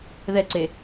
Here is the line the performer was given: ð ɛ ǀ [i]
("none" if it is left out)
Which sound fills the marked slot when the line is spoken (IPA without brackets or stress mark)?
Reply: e